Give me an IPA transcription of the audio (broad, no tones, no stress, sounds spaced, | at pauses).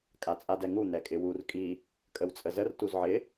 kʼ a t͡sʼ a d ɛ ŋ u n̪ ɛ kʼ ɪ w u r kʼ i | kʼ ə w t͡sʼ ə z ə r t u z ʕ ɪ